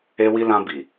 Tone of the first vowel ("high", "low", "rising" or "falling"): high